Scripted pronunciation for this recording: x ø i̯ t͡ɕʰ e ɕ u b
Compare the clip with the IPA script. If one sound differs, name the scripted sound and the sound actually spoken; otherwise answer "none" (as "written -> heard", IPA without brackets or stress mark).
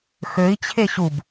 none